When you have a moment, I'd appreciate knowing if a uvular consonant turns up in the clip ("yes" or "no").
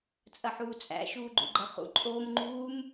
yes